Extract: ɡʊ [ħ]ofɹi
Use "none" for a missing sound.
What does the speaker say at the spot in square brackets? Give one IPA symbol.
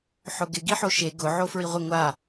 ʕ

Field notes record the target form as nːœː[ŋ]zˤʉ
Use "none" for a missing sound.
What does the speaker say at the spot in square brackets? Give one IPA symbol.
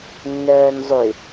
n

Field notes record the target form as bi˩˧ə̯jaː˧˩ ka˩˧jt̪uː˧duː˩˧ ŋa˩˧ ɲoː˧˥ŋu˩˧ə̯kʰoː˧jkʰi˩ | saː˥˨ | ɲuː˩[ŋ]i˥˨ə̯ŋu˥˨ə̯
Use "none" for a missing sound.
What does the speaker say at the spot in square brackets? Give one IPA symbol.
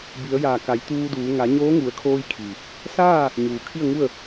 kʰ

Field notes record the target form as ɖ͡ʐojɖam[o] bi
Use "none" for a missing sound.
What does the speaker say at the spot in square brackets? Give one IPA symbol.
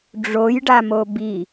o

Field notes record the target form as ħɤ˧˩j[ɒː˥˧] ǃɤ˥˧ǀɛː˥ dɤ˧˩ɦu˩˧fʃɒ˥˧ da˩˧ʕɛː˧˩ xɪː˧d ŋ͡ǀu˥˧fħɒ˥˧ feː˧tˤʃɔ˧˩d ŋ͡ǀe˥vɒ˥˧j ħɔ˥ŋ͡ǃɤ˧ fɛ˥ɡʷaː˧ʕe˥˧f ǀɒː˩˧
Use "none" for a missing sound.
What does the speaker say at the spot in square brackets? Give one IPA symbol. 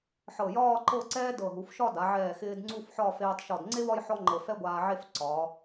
ɒː˥˧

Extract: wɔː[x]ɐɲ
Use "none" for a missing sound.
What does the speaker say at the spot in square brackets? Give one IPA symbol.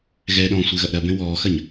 x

